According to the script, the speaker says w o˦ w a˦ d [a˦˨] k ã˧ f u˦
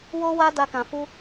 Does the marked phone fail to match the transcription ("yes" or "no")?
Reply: yes